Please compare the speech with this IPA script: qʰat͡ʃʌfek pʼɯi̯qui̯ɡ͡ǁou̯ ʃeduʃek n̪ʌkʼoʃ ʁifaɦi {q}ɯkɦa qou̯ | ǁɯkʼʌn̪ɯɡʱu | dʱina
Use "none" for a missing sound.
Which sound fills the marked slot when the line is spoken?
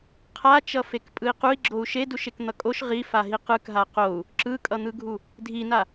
q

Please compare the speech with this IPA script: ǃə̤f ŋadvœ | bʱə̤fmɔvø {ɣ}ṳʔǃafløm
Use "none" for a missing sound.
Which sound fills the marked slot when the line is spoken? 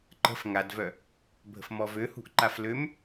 h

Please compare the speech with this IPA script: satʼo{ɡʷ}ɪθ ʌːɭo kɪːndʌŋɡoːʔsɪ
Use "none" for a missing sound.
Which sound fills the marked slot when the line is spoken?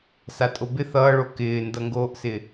b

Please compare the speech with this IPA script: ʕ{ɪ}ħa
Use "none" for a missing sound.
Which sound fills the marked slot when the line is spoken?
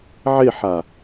ɪ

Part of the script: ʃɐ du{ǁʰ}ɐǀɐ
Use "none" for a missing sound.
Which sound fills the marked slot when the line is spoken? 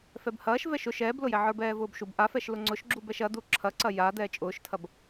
ǁʰ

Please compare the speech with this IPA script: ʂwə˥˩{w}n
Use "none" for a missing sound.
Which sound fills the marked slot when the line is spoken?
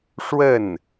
none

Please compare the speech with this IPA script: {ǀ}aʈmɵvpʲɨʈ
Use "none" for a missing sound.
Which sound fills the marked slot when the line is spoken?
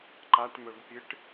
ǃ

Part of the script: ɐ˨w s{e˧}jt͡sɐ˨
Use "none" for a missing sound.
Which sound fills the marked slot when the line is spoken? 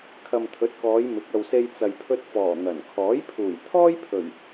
e˧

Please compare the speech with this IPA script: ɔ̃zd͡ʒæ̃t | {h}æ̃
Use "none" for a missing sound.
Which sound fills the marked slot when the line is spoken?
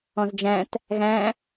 ɣ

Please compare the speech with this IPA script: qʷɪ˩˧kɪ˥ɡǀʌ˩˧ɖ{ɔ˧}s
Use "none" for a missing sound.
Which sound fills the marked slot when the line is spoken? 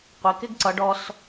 ɔ˧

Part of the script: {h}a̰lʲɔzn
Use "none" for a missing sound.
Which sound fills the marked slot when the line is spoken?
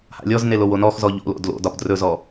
h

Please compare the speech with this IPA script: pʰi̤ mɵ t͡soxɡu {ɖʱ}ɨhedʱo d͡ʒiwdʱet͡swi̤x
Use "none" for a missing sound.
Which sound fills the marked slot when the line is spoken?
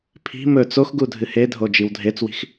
dʱ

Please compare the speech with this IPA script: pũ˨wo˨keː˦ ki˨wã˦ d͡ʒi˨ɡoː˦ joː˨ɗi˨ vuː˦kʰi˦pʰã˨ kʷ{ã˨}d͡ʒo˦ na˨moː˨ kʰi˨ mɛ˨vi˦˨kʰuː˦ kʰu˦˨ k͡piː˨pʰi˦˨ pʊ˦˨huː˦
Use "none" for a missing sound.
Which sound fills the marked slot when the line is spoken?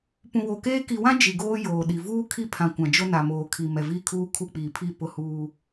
ã˨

